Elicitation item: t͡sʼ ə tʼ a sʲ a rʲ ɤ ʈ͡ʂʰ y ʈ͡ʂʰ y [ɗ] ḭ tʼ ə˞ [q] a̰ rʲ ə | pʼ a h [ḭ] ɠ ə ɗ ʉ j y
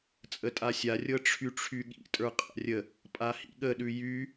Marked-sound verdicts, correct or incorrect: incorrect: ɠ, incorrect: qʼ, correct

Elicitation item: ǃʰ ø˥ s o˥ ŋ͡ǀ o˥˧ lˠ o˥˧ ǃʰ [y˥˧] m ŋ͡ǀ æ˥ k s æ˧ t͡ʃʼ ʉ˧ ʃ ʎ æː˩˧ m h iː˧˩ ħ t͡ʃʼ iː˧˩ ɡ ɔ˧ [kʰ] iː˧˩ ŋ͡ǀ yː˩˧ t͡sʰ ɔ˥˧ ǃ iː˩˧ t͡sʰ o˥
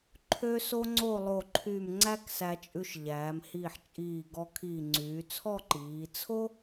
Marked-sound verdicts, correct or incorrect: correct, correct

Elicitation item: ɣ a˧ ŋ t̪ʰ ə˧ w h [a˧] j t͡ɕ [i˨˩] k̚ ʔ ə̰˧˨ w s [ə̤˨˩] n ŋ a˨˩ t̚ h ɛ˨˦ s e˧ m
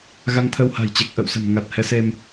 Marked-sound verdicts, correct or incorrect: incorrect: a̤˨˩, incorrect: e˨˩, correct

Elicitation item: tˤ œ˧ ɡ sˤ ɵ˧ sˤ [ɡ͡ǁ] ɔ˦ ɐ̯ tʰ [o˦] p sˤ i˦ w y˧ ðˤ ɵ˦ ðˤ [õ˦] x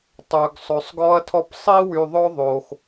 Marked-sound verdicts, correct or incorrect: incorrect: ɡ, incorrect: ɔ˦, incorrect: o˦

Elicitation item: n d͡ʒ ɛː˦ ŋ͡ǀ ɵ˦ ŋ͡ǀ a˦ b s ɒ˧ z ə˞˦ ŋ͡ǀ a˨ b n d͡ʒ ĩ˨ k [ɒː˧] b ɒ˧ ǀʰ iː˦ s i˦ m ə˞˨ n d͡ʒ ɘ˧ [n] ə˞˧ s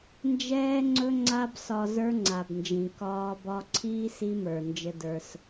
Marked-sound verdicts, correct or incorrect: correct, incorrect: d

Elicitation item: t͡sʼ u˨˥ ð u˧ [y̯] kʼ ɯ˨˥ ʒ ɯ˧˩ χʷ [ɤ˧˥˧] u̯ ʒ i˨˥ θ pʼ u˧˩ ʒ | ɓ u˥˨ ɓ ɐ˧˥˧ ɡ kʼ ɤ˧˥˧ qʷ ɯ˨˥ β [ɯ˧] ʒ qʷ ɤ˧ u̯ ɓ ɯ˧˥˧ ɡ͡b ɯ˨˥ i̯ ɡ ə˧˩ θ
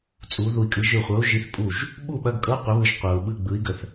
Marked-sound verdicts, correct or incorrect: incorrect: i̯, incorrect: ɤ˨˥, correct

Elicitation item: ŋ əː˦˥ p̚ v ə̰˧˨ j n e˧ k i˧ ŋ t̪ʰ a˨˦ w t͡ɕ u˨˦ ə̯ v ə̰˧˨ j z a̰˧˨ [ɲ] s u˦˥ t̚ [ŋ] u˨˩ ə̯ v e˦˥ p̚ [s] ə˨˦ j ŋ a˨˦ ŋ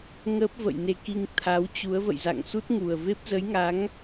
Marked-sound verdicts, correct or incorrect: incorrect: ŋ, correct, incorrect: z

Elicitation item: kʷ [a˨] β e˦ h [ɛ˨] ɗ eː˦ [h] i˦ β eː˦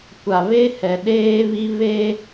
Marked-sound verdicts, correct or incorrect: correct, correct, incorrect: β

